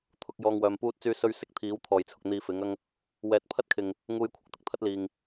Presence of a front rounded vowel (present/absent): present